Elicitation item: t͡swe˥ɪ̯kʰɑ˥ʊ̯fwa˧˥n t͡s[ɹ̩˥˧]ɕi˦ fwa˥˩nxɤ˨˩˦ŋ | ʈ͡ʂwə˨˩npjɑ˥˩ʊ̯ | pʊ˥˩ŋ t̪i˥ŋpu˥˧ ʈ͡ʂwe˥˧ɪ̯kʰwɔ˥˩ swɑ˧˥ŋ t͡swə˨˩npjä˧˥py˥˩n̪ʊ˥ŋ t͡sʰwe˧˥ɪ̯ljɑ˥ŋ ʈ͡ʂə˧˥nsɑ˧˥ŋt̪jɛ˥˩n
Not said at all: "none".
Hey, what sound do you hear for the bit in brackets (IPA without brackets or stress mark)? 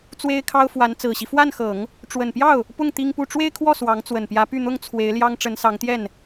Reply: ɹ̩˨˩